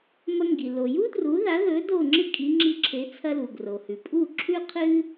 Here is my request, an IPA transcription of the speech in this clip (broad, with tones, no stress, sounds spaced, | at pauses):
m ɐ˧ ŋ ɡ i˩ l o˩ j u˥ d r u˩˥ ð a˩˥ ð ɵ˩˥ d o˥˩ ŋ͡ǁ ɨ˥ kʼ i˩˥ ŋ͡ǁ i˧ ǁʰ e˩˥ t͡sʰ ɐ˧ l u˩ ɡ r o˩ h ʉ˩ pʼ u˥˩ ǁʰ ʉ˥ qʰ ɨ˥